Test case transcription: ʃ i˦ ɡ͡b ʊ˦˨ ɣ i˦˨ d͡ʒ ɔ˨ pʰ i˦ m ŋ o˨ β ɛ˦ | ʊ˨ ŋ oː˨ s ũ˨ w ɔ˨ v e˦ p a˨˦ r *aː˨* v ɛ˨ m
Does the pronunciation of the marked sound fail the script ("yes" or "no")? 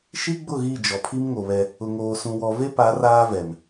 yes